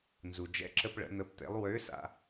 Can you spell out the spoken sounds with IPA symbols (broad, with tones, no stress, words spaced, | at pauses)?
nzu˩d͡ʒɛ̰˧ǁə˧pɭə̰˩˧ n̪ə˧˥pt̪ḛ˧˥lˠ wø˧˥ sa̰˧